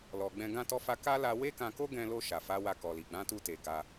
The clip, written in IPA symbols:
l ɔ˨ ɡ͡b ɛ̃˧ ɡ ã˧ t ɔ˧ f a˧ k a˦ l a˧ w e˦ k ã˧ k o˦ ɡ ɛ̃˧ l o˧ ʃ a˨ f a˨˦ w a˧ k ɔ˨ l i˨ ɡ͡b ã˨˦ t u˧ t e˨ ɡ a˧

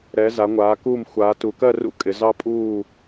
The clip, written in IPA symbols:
ɾ ɛ˩˧ z a˩˧ ŋʷ aː˩˧ k uː˧˩ m xʷ aː˩˧ t u˩˧ k ɜ˥˨ r ṵ˦˥ kʼ ɪ˩˧ z ɑ˦˥ pʼ uː˥˨

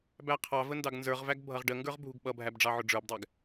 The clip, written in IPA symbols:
b æ qʰ ɑ v ə n d ɑ ɡ n z ə˞ ʁ v æ ɡ bʱ ʌ ʁ ɖ ə ŋ ɡ ə˞ ʁ bʱ u ɡ ɓ ʌ bʱ æ b ɖ͡ʐ ɑ ʕ ʊ ɖ͡ʐ ə˞ b dˤ æ ɡ

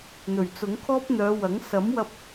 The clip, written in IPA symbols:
n̪ ɵ˨˩ ɥ t͡s ʊ˨˥ ŋ kʰ ɔː˥ p̚ n̪ œː˨˧ w ɐ˨˥ ŋ s ɐ˨˥ m w ɐ˧ p̚

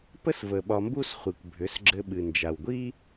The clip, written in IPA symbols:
p ə˦ s v ə˨ ɓ ɒ˧ m b u˦ s χʷ i˨ kʷ bʱ ʏ˨˦ s ɡ͡ǁ ɘ˧ ɓ ɨ˨ n d͡ʒ a˨ w ɡʷ i˦

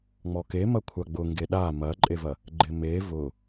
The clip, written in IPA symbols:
ŋ͡m ɔ k e m ɐ kʷʰ a ɡ͡b ʊ ŋ ɡ e ɗ a m ɐ ǃʼ e v ɐ | ɡ͡ǃ ɪ m e v ʊ

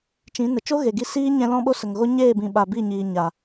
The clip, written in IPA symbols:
t͡ʃ ĩ˨˦ n ə˨ t͡ʃ o˦ ɣ e˨ ɡ i˧ s iː˦ ɲ ɛ̃˧ l ɔ̃˦ ɓ o˦ s ə˨ ŋ ɣ o˦ ɲ eː˦˨ b ĩ˨ ɓ a˨ b i˦˨ ɲ iː˨ ɲ a˨

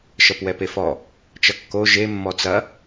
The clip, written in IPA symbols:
ʃ ʌ p w ɛ p e f ɔ | t͡ʃ ʌ kː o ʒ e mː ɔ t͡s ɐ

